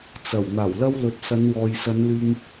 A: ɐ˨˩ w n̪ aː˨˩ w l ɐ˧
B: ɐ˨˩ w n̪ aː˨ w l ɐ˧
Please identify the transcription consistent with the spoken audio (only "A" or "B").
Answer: A